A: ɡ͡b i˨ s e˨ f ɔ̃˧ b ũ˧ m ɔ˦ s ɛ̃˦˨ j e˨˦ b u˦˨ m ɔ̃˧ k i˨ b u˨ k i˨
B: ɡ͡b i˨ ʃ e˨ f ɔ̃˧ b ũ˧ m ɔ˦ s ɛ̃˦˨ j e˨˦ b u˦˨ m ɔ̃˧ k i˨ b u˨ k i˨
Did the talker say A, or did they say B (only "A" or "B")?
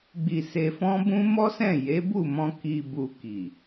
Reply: A